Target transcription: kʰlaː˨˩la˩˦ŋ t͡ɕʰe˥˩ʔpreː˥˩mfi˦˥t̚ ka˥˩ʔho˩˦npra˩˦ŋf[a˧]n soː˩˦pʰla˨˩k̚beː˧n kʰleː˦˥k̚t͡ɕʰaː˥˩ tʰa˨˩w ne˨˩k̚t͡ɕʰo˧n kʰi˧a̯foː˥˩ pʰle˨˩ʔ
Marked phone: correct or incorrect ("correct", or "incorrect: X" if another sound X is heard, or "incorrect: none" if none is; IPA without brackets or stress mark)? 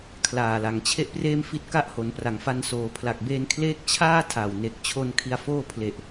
correct